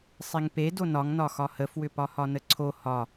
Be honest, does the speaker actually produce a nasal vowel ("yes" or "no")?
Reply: no